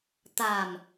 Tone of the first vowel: low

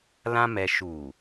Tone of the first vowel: high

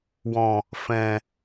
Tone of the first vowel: low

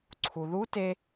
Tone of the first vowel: low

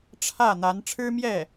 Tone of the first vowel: falling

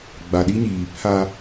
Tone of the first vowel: low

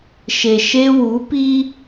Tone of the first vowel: low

